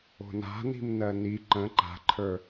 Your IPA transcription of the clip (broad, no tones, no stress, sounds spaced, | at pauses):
o̤ n a̤ n i̤ m n ɜ n i ǃ ə̃ ǃ a̤ ǃʰ ə˞